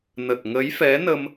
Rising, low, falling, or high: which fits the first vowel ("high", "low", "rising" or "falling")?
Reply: low